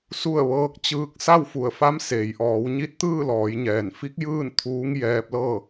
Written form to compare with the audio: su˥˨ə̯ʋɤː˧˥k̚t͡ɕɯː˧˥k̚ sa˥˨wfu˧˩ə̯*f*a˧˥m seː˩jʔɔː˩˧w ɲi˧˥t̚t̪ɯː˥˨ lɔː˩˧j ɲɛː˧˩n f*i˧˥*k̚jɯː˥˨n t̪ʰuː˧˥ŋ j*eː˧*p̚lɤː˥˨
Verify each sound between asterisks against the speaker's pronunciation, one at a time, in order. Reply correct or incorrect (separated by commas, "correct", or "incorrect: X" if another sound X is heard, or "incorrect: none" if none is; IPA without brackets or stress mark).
correct, correct, incorrect: ɛː˧